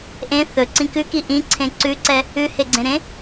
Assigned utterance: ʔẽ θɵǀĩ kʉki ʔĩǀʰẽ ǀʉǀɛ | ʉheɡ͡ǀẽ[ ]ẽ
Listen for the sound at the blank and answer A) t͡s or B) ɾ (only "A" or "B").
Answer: B